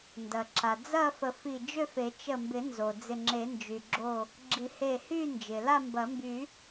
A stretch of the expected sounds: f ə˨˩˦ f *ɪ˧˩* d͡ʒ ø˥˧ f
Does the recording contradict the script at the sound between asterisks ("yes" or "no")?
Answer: yes